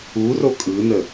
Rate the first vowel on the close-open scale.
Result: close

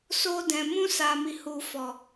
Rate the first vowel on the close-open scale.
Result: mid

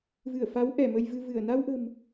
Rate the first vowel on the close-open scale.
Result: close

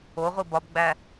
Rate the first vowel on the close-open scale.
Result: mid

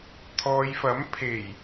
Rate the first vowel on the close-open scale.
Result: mid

